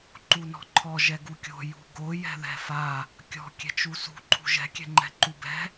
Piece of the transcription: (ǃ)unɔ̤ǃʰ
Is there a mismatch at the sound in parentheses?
no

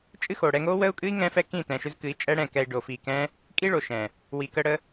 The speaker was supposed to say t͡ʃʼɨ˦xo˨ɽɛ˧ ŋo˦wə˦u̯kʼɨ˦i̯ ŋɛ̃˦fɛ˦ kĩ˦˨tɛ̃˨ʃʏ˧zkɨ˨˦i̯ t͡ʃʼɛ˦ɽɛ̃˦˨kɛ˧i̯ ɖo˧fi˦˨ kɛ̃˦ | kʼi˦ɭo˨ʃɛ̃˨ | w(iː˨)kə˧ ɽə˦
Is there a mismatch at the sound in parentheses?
yes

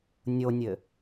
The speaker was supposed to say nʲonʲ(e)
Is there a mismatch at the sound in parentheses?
yes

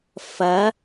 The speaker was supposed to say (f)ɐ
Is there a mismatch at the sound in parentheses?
no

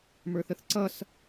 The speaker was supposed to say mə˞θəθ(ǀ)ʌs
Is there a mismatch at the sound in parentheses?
no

